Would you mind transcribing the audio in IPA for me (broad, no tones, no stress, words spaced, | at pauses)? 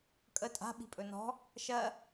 kʼə tʼa̤ ɓi̤pʼɵnɔ̤ | ʃɜ